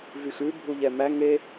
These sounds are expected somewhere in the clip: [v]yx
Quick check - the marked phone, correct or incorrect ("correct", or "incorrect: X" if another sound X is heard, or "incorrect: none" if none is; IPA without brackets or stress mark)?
correct